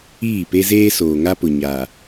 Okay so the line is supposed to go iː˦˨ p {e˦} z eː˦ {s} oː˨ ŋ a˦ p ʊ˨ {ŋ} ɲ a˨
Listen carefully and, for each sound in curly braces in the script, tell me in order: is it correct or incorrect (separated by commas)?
correct, correct, incorrect